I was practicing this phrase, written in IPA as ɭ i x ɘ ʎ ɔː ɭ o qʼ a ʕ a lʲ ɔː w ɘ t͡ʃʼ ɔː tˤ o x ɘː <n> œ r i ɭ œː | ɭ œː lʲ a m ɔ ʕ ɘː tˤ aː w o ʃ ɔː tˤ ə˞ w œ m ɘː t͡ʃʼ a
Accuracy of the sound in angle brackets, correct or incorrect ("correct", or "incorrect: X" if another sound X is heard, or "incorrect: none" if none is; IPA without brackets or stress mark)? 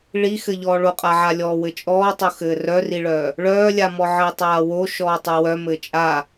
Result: incorrect: r